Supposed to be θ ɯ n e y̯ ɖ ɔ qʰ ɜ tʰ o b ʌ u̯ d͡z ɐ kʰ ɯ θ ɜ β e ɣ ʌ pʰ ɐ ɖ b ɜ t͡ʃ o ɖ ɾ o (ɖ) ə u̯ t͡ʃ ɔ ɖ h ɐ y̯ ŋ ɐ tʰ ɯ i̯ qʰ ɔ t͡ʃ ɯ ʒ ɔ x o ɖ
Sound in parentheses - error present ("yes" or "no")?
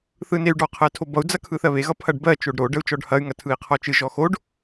no